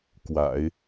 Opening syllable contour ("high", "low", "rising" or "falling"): low